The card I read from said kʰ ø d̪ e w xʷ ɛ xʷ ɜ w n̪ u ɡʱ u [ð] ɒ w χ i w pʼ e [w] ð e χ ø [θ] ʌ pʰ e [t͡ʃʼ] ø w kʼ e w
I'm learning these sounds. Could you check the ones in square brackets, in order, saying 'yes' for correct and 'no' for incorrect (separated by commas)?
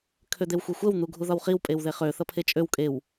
yes, yes, yes, yes